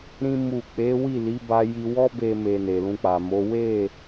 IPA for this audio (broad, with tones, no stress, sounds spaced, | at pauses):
ɾ ĩ˦ m u˦˨ k͡p e˨˦ w i˦˨ l i˨˦ b a˦ j i˦ w ɔ˦ b e˧ m e˨ n e˨ l ũ˧ k͡p a˨ m o˨˦ w e˦˨